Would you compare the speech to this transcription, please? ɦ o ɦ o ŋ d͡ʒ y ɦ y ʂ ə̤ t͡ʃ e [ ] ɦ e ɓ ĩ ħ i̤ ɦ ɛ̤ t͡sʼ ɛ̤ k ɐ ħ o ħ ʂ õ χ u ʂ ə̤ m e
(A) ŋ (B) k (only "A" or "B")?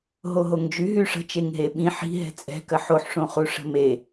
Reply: A